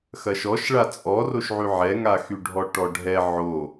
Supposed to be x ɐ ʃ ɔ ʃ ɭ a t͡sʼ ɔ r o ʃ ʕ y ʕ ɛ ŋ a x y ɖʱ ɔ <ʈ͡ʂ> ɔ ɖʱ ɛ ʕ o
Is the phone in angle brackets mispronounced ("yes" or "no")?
yes